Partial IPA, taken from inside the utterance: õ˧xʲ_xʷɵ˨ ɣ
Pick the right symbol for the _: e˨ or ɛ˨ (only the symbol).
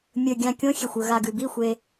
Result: e˨